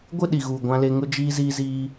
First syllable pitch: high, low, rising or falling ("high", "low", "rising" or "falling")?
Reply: falling